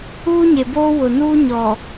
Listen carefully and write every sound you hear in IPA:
uː˦ ɲ e˨ b oː˦ w ʊ˨ n uː˦ ɲ ɔ˨

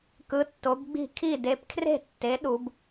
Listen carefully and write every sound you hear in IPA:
k ɯ˩˥ tː o˩˥ b ɡ͡b i̤˥˩ kʰ i˥˩ d e˩˥ p kʰ r e̤˥˩ tː e˩˥ ɗ u˩˥ b

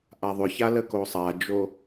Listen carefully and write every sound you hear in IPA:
ʔ a ðˤ ʏ ç a l ə k o sˤ a d͡ʒ o

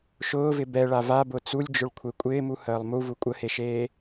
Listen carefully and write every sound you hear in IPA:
ʃ ʊː v ɪ b ɛ ɭ a v a b ʊ t͡s u lʲ d͡ʒ ʊ ɭ kʷʰ e kʷʼ ɪː m u h əː lˠ m u v u kʷʼ ə h e ʃ eː

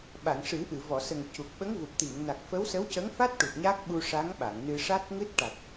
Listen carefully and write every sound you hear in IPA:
ɓ a˨˩˨ ŋ ʂ ɨ˨˩˦ ʔ ɨ˨˩˨ v ɔ˨˩˨ s ə˨˩ ŋ c u˨˩ k̚ ɓ ə˧˥ ŋ v u˨˩ p̚ t̪ i˨˩˨ ŋ n a˨˩ k̚ f ə˧˥ w s ə˧˥ w c ə˧˥ ŋ f a˦˥ t̚ ʈ u˨˩ t̚ ɲ a˦˥ k̚ ɓ u˧ ʂ a˧˥ ŋ ɓ a˨˩˨ ŋ n ɨ˧ ʂ a˦˥ t̚ ŋ ɨ˦˥ t̚ ʈ a˨˩ t̚

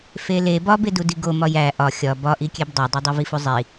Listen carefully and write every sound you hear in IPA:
f e l e b ɒ b e d u d i ɡ o m ɒ j æ ʔ ɒ xʲ ɒ b ɒ ʔ i kʲ e b dˤ æ dˤ o dˤ i v i f u zˤ i

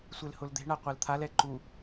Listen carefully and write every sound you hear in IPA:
sʷ e l h ʊ l d̪ e̤ ɳ a qʷ a l t̪ʰ a l ɛ ǃ u

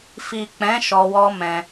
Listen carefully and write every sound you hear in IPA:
f i˨ k͡p ɛ̃˨˦ ʃ ɔ˧ w ɔ˦ m ɛ̃˧

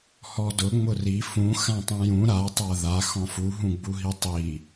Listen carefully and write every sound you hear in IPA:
h ɔ d ʊ ŋ͡m ʊ r i f ũ x ã tˤ ũ j ũ ɾ a tˤ a ð a x ɔ̃ f u ɦ ũ ɡ͡b u ɦ i tˤ i

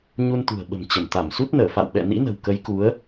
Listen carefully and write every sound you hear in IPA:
ɲ u˧ n t̪ ṳ˨˩ ə̯ ɓ ə̤˨˩ m t͡ɕ ə˧˩ m t̪ a˧˩ m s u˦˥ t̚ n əː˧˩ f a̰˧˨ w ɓ ɛ̰˧˨ n ḭ˧˥ n ə̤˨˩ w k ə˨˦ j k u˨˦ ə̯

